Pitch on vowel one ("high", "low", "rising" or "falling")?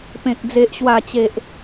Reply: low